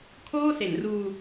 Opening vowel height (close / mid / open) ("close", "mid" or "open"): mid